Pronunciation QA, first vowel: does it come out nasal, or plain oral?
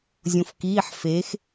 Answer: nasal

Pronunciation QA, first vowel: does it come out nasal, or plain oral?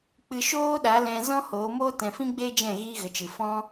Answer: oral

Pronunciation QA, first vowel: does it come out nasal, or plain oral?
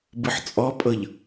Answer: oral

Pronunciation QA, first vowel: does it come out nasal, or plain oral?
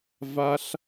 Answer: oral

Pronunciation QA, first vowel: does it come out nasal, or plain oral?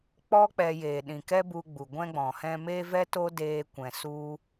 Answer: oral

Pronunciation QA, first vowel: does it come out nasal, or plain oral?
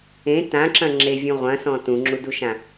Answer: nasal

